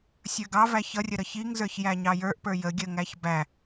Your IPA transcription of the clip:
sʲə˞ɡɑvæ çʌrʲə ɾʌçiŋzə˞ç jæɲɑjə˞ʔpə˞ jə ɡʲəŋæç bæ

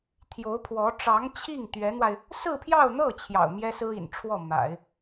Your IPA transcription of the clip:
t̪ʰjo˧˥ʊ̯pʰwɔ˧˥ ʈ͡ʂɑ˧˥ŋ t͡ɕʰi˥˩ŋ t̪ɥɛ˧˥n̪wa˧ɪ̯ | sɹ̩˥˧pʰjɑ˥˧ʊ̯n̪ɤ˥˩ t͡ɕʰjɑ̰˨˩ʊ̯ mjɛ˥sɹ̩˥ḭ˨˩nʈ͡ʂʰwɔ˥˩ ma̰˨˩˦ɪ̯

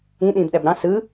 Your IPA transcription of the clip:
ĩ ɗĩːbɗæbɾɑ̃ sɯ

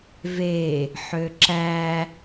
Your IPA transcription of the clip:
ve | ħøǁæ

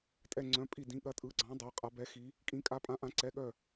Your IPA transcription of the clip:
tʼɛ˧˩ ŋ͡ǀœ̃˩˧˩pʼi˧˩dĩ˩˧˩ ɠɐ˨˦tʼɯ˩˧˩ɡ͡ǀɑ̃˨˦ dˤa˩˧˩qʼa˨˦ bɛ˨˦xi˨˦ | kʼĩ˩˧˩kʼa˨˦pʼã˨˦ʔã˨˦ ǀɛ˩˧˩ɠœ˧˩

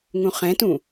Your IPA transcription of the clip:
ŋũχɛ̃tũ

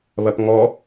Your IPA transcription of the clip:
βɐpŋɔ

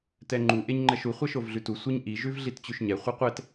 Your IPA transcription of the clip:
tɛŋ͡ǃu ʔeɲŋ͡ǃɛʃu χʷɛʃovɮʉtu sʷiɲʔi ʒʉvɮitt͡ɕʉʃɲɛ χʷiqʷɛt

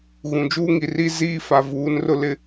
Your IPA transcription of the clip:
ɣũ˨d͡ʒuː˦ŋi˨ri˦ ziː˦fa˨ vuː˨˦nrʊ˦ lɪ˦

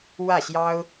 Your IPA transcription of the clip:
wä˥˩ɕjɑ˥ʊ̯

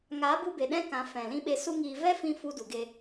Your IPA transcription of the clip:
ŋa˨˦bu˧be˨ ɗɛ̃˦kã˨˦ fɛ̃˨lĩ˦ ɓe˧su˦ŋiː˧ vɛ˦fĩ˧ fu˧du˨ɡe˧

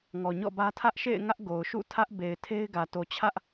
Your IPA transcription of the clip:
ŋɔ˨ɲɔ̰˦˨bä˦ tʰä˦ʔʃḛ˦˨ɪ̯ ŋä˦ʔɡo˨ʊ̯ʃṵ˦˨ tʰä˦ʔbe˨ɪ̯tʰe˦ɪ̯ɡä˨ to˨t͡ɕʰä˦ʔ

